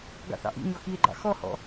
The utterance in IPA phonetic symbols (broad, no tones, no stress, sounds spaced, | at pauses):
ɡ ɑ̰ θ ɑ̰ ʔ ḭ ɲ ɔ x i e̯ ɡ͡ǃ ɑ̰ x ɔ h ɔ̰